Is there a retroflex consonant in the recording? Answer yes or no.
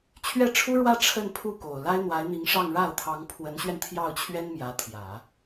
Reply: yes